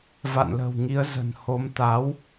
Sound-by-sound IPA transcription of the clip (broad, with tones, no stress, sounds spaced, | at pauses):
v a̰˧˨ n l ə̤˨˩ w ŋ i˨˦ ə̯ z ə̤˨˩ n h o˨˦ m t̪ a˨˦ w